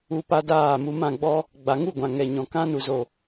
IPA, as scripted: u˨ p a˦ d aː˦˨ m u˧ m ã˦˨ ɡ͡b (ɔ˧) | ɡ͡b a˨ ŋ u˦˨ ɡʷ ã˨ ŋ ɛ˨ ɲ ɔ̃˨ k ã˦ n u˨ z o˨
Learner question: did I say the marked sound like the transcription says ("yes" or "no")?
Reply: no